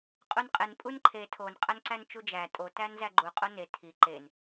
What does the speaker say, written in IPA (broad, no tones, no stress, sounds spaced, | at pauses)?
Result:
qʼ u n qʼ e n pʼ u n ǃʰ e tʰ o n qʼ æ n ǀ æ n t͡ʃ u d͡ʒ æ tʼ o t æ n z æ ɡ͡ǃ u qʼ o n e tʰ i ǃ e n